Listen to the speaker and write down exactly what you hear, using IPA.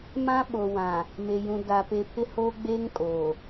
m ã˦ ɓ o˨ w ã˨ | m e˨ j ũ˨ d a˨ p e˨ pʰ ɪ˦ h oː˦ ɡ͡b eː˦ ŋ kʼ oː˨

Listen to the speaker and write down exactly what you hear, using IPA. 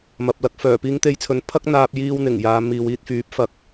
m ɐ˨ p̚ l ɐ˧ k̚ f œː˨˩ p iː˧ ŋ t̪ e˧ j t͡sʰ ɵ˨˥ n pʰ ɐ˥ k̚ n̪ aː˧ p̚ j iː˧ w n̪ ɪ˨˩ ŋ j aː˨ m iː˨ w iː˧ t̚ f yː˨˥ p̚ f ɐ˨˥ k̚

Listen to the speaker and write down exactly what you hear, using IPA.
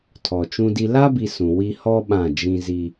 tʰ ɔ˨ t͡ʃ ũ˦ d i˦ l a˦ b i˨ s ũ˨ w i˦ h ɔ˦ ɓ ã˦˨ d͡ʒ ĩ˦ z i˦

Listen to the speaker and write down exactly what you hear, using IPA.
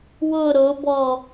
w ʊ ɾ ʊ b ɔ

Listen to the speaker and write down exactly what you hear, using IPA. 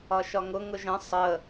ɒ ʃ ɒ ŋ ʊ ŋ ʊ ʒ ə̃ sˤ ə

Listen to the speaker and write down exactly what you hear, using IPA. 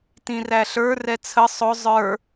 t ĩ r æ ɬ ə˞ r ɛ t͡sʰ ə sˤ ʊ zˤ ə˞

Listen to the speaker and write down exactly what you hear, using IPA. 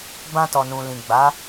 b ã˧ t ɔ˨ n ũ˨ l ĩ˨ ɡ͡b a˨˦

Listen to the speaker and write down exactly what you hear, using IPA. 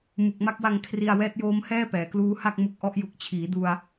m u˨˩ k̚ m a˥˩ k̚ w a˧ ŋ kʰ r i˧ a̯ w ɛː˦˥ t̚ j oː˦˥ m h ɛː˥˩ p ɛː˩˦ k l uː˦˥ h a˥˩ k̚ m u˨˩ k̚ ʔ ɔ˦˥ ʔ j u˨˩ k̚ t͡ɕʰ iː˩˦ d u˧ a̯

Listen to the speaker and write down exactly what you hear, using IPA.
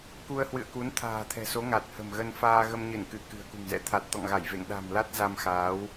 k u˧ ə̯ h w ɨ̰˧˨ ə̯ k u˨˦ n t̪ʰ a̤ː˨˩ t̪ʰ ɛ̤˨˩ s o˨˦ ŋ a˨˩ t̚ h ə̤˨˩ m ɣ ə˧ n f aː˧ ɣ ə˧ m ɲ ɨ˧˩ n k ɨ˧˩ k ɨ̤˨˩ ə̯ k ṳ˨˩ ŋ z ɛ̰˧˥ t̪ʰ a˨˩ t̚ t̪ ɔ̰˧˨ ŋ ɣ a˧˩ j v ḛ˧˨ ŋ ɗ a̤˨˩ m l a˦˥ t̚ z a˧ m x aː˨˦ w

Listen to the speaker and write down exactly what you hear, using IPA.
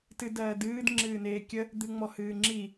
t ɨ d ɜː d ɨː d ŋ͡ǁ ɨː n eː kʲ ə | d̪ ɨ ŋ͡m ɔ h ɨː ŋ͡ǁ i

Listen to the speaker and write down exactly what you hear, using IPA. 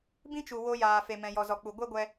b ĩ˦ t͡ʃ u˨ w o˧ j aː˨ f e˨ m ɛ̃˨ j ɔ˨ z ɔ˨ k͡p u˨ ɡʷ ɛ˦ ɡʷ ɛ˧

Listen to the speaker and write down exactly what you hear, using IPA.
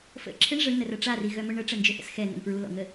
f ə̰ ǁʰ ɪ ɳ ʐ ə ɳ n ə r ɐ ʈ͡ʂ a r i ɣ œ m ʊ ɳ ə ʈ͡ʂ ə n d͡ʒ ʏ θ ə̰ s x ɛ n̪ ə̰ n f ɹ u l ɔ̰ ŋ ə

